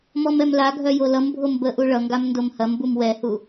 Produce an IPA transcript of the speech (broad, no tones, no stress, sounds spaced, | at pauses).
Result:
m ɔ m ɛ m l a ɡʱ œ j o l ʌ m bʱ o m b ə ʔ u ɭ ʌ ŋ ɡ a m n d o m h ɐ m b u m w ɛ h u